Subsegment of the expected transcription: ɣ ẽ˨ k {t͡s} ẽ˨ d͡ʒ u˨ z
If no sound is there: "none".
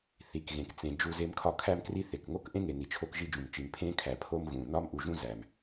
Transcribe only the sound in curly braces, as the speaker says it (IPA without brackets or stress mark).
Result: t͡s